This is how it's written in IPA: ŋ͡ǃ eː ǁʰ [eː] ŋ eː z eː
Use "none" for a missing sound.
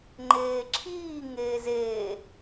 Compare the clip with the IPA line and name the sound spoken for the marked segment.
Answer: iː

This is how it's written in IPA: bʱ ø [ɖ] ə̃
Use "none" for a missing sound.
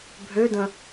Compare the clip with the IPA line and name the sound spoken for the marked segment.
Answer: d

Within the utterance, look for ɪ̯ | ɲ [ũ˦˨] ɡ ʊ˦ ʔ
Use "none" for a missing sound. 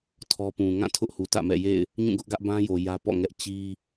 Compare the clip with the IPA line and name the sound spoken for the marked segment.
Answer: ũ˦˨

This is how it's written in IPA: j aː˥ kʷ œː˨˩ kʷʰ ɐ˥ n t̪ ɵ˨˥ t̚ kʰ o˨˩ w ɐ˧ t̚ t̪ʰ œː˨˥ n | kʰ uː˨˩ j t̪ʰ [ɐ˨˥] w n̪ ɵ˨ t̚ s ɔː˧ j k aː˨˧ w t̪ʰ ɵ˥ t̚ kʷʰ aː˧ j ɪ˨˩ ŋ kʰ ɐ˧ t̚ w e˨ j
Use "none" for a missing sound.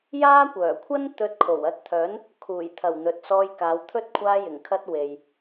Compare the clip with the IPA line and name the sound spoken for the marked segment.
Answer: ɐ˨˩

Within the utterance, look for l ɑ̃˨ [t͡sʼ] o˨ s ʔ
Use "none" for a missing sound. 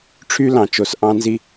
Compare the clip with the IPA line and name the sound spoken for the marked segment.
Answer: t͡ʃ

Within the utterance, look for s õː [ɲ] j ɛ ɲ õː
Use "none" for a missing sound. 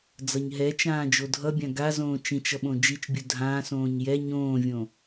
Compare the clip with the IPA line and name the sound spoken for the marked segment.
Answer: ɲ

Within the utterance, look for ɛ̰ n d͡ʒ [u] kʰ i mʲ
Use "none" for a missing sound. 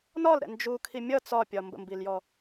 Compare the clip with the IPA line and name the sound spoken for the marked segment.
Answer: u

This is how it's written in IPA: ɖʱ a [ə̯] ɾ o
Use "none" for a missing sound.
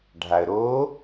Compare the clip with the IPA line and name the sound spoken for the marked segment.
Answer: ə̯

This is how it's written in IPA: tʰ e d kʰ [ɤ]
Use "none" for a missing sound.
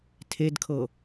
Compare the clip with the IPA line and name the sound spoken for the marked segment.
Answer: ɤ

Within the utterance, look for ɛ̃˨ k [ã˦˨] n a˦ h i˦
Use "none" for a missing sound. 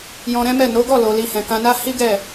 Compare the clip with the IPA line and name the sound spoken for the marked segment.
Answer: ã˧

